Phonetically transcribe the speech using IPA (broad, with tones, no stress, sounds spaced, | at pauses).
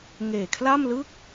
ŋ eː˨˩ kʰ l a˥˩ m l ɯ˥˩ k̚